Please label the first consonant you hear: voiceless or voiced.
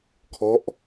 voiceless